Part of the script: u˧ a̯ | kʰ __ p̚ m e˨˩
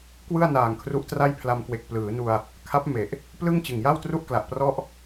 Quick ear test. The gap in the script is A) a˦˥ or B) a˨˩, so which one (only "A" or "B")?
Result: A